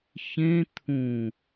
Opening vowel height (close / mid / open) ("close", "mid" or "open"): mid